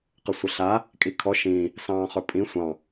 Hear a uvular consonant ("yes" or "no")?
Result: yes